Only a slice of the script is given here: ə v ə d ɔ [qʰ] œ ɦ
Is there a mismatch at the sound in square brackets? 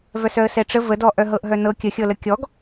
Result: yes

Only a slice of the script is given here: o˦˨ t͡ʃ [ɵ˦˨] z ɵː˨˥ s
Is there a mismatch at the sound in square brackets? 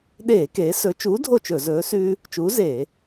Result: yes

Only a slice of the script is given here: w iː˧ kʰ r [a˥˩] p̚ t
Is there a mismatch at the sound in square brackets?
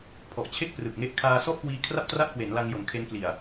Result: no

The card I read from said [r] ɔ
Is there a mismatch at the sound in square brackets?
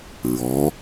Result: yes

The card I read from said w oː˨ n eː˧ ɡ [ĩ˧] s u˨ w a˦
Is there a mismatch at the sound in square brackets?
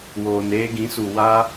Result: yes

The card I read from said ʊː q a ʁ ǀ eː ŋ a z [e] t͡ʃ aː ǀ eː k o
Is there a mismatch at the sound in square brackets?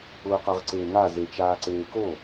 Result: no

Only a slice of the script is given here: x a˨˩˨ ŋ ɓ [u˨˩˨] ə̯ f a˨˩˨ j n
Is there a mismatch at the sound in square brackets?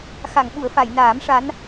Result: no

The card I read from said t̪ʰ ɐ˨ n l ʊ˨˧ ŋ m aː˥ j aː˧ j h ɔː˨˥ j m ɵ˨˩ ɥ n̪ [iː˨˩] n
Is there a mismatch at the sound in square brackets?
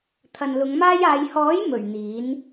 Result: yes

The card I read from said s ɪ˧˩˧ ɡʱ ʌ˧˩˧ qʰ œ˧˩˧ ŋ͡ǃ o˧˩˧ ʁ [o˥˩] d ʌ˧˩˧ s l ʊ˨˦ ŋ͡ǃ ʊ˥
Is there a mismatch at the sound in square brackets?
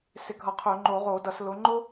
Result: yes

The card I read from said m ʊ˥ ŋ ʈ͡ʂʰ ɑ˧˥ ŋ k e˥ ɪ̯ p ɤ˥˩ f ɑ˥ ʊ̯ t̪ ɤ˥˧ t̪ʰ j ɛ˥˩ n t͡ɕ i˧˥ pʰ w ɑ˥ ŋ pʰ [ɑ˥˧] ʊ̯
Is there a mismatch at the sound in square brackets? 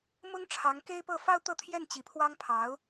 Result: yes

